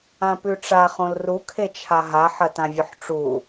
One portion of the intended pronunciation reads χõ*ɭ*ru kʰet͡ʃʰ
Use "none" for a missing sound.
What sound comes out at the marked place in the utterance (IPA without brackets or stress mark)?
l